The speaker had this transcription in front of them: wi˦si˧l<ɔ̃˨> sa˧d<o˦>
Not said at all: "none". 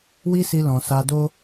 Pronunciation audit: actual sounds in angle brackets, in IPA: ɔ̃˨, o˦

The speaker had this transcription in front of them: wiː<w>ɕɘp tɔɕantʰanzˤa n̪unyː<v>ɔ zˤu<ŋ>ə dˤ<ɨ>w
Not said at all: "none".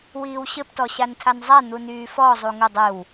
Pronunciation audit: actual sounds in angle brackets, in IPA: w, f, ŋ, ɨ

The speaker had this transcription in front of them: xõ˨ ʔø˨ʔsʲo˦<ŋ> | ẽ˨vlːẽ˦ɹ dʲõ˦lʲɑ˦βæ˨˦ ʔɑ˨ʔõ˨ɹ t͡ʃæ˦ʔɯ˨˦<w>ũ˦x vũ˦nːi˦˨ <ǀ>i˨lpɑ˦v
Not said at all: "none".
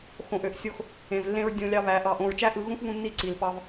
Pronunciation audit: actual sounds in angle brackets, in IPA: x, ɣ, ǀ

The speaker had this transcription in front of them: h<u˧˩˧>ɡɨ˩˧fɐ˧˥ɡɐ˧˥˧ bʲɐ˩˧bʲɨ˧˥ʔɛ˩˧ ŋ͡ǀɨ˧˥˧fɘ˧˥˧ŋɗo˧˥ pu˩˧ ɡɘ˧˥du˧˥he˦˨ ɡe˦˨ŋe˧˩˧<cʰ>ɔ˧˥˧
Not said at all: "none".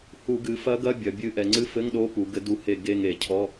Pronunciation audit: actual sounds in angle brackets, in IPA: u˧˩˧, cʰ

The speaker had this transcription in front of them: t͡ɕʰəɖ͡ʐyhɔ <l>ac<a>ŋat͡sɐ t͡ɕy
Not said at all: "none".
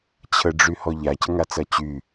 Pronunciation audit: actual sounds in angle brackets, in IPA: ʎ, ə

